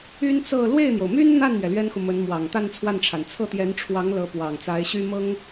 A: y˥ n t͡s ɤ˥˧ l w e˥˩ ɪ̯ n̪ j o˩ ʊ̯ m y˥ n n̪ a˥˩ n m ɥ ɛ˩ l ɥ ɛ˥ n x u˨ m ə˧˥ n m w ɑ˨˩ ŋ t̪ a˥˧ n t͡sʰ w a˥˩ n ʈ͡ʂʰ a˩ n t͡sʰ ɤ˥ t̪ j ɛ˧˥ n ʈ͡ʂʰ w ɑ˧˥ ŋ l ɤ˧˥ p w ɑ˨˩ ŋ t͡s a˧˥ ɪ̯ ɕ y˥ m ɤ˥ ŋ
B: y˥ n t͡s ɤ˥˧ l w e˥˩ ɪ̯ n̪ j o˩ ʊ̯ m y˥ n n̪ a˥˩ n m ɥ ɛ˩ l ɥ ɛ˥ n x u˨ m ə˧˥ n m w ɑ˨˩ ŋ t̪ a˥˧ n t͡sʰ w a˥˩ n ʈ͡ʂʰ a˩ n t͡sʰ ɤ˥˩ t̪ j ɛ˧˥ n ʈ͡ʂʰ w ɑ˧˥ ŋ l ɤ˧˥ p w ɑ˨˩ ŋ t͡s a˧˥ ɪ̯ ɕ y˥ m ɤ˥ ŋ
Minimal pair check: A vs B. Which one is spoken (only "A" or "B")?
B